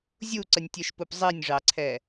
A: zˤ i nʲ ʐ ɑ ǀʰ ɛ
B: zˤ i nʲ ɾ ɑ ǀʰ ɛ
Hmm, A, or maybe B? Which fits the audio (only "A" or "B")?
A